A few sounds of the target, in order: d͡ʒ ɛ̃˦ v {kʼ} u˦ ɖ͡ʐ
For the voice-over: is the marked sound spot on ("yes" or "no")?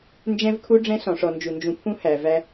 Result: no